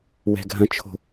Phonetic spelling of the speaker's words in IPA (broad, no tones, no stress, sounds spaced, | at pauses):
w ɛ̤ ɡʱ ɐ̃ t͡ʃʰ o̤